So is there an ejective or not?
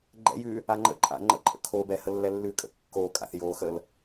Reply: yes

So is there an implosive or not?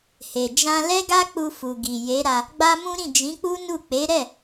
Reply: no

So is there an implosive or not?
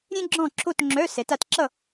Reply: no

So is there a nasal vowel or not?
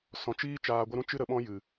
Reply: yes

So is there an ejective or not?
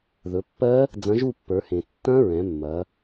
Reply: no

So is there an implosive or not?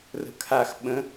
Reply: yes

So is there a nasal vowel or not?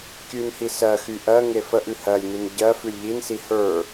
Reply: no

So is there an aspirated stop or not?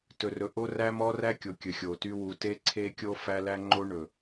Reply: yes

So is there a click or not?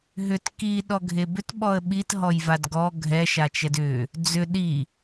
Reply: no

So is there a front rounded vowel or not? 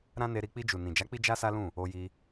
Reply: no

